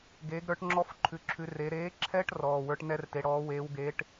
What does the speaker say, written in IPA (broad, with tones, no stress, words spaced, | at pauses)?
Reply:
ɡeː˨˥ɡɾə˞˨˥ʈŋ͡ǁɔ˦˥f ǃʰʉ˨˥ǁʰʉ˨˥ re˨˥ ɾeː˨˥ǁʰɛ˦˥ʈ rɔː˩˧˩wə˞˦˥ʈnɛ˦˥rte˨˥ ɽɔː˨˥weː˨˥wɡe˨˥ʈ